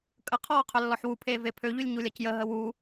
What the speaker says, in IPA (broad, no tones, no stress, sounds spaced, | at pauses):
kʼ ə qʰ ɔː qʰ œ lː ɔ ħ w u pʰ eː v e pʰ ø ʎ y lʲ ɲ u lʲ a c j ə ɦ ə w u